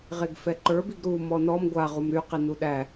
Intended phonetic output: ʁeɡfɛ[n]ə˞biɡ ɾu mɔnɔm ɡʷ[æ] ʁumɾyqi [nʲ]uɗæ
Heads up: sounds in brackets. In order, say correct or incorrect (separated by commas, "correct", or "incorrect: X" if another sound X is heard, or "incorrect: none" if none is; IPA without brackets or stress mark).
incorrect: ǃ, incorrect: a, incorrect: n